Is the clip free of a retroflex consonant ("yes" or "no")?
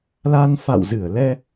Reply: yes